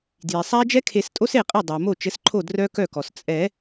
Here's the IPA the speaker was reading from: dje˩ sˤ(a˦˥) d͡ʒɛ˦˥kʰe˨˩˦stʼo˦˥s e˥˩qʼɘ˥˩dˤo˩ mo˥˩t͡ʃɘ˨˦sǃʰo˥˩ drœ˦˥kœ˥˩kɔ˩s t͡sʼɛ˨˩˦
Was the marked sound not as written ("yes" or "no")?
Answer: no